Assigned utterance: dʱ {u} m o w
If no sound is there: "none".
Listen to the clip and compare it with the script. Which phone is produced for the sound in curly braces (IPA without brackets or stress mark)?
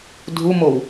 u